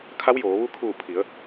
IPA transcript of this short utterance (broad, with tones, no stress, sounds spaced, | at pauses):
kʰ a˧˥ w j oː˩˧ ʋ u˧ kʰ uː˧˩ pʰ i˩˧ ə̯